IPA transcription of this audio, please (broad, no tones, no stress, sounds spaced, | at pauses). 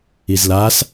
i z l a s